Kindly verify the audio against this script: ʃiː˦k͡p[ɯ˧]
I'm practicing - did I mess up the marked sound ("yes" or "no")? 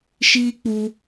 yes